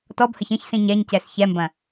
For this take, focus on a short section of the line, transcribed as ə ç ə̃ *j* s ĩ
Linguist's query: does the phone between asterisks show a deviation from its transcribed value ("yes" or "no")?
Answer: yes